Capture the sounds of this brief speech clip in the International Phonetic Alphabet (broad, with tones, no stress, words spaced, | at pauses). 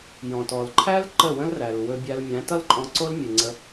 jɔ̃˨tɔ˨lǃʰæ˦l ǃə˦˨wə̃˦lræ˨l wɵ˧bʲæ˧l mʲæ̃˨˦tʌ˦lǃʼɔ̃˧ǀo˦l mʲɨ˧ŋ͡ǀə˦